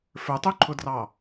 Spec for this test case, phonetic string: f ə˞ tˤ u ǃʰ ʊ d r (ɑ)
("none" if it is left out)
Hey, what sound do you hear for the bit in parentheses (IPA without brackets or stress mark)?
ɑ